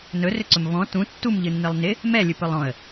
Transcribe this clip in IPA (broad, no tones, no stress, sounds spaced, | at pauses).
n ɵ r ʏ ǀ ɵ m v ɔ̃ t ũ tː u m ʎ ɨ nː ɨ lˠ n ɪ | m ɛ lʲ ɨ p ɵ lˠ ɔ̃ ə̯